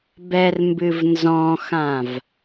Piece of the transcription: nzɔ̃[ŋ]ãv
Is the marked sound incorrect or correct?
incorrect